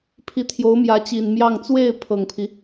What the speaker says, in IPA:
pʰi˧˥t̪ʰjo˧˥ʊ̯mjä˧˥t͡ɕi˨˩n mjɑ˥˧ŋ t͡swe˥˩ɪ̯ pʰɤ˨˩ŋpʰi˦

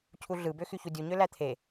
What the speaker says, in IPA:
cʰuɮɯbø xyçudʲuɲø læt̪ʰe

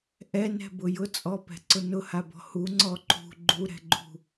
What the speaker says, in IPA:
ʔɛnɛ̤bʊ jʊt͡sʼɔpɛ̤ǀʊ nʊhabɔ̤ huŋ͡ǀɔ ǃṳ ɡ͡ǃuɾɛ̤ɡ͡ǃṳ

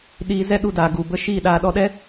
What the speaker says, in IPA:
ɗiː˧zɛ˦ɗu˧daː˨ ɡu˨ bə˧ ʃiː˦˨ɗaː˧ ɗɔ˧ɗɛ˦

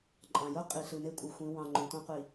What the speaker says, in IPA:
ǃʼɑ̃˨jo˦ qʼi˨ɬɨ˨ne˦ kʷʼɨ˨xʷĩ˨˦ wɑ̃˨ ŋ͡ǃõ˨ tʷɑ̃˦ qʷi˨

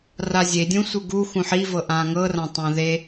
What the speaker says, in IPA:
razʲedʲũ sʷɯɡu xũħivɤ ʔãŋɤ rãtˤõðe

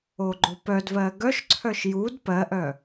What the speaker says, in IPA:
oɡ͡ǃopœdvɜ ɡœʃǀʰœʃ jud pɜʔœ

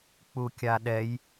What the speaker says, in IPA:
k͡pukʲaɗɛj

